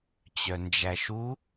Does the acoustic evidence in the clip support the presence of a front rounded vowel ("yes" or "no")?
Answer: yes